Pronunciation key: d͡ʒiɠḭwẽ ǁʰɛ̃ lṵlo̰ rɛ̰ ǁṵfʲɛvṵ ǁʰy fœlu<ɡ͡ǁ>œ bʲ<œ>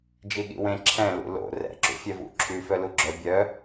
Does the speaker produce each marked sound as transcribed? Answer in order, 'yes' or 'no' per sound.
yes, yes

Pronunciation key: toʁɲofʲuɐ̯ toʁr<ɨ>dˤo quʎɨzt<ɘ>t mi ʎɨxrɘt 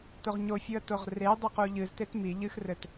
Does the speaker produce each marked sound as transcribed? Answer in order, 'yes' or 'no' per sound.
no, no

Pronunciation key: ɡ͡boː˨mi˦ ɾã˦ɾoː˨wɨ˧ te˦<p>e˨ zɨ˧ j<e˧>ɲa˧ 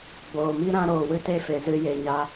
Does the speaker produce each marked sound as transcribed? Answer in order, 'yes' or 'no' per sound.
no, no

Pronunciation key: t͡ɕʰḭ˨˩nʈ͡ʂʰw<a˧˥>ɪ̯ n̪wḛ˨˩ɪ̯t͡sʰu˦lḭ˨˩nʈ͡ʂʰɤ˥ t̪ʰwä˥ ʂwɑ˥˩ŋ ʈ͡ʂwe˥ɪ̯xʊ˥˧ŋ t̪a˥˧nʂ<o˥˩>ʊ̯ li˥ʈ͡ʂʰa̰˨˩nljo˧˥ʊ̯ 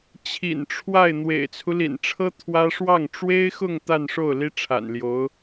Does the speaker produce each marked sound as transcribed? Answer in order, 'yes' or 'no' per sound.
no, yes

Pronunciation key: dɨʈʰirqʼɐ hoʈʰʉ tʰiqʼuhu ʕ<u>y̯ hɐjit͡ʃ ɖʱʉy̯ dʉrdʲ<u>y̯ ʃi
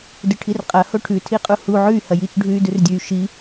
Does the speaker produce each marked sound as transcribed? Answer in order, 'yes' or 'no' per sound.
no, no

